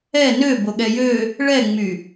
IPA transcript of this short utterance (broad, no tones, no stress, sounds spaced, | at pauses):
ɛ n ø b o ɠ ɛ j ø | ɭ ɛ ŋ͡m y